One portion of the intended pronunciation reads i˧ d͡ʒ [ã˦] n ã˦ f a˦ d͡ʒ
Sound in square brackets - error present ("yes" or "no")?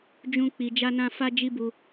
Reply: yes